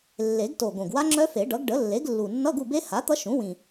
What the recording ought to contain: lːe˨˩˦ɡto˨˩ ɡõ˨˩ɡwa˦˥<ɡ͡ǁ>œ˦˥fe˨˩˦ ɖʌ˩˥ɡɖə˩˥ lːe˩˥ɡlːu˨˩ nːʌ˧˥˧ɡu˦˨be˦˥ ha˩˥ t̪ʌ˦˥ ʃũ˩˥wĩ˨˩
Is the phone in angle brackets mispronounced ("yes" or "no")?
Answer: yes